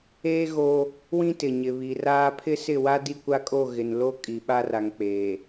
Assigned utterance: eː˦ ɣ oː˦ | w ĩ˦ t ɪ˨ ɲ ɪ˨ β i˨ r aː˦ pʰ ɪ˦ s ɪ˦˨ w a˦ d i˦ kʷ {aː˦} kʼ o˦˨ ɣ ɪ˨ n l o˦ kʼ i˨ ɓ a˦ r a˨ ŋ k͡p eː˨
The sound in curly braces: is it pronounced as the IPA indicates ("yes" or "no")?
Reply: no